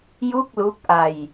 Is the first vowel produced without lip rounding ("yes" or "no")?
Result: no